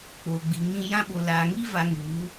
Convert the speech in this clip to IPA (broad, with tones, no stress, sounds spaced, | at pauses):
k͡p o˨ ɡ͡b i˨ ŋ ĩ˧ j ã˧ ɓ o˨ l aː˨ ŋ i˦ v a˧ ŋ u˨˦